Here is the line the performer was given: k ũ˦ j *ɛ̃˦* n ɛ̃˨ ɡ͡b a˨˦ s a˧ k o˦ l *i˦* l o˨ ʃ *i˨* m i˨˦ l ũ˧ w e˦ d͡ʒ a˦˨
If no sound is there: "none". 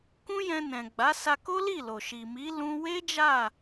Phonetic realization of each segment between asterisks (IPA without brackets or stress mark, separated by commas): ɛ̃˧, i˦˨, i˨